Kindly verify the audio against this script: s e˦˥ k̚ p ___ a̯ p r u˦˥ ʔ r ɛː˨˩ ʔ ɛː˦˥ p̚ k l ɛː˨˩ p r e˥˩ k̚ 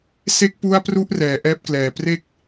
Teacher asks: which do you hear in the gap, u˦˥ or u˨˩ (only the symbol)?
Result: u˦˥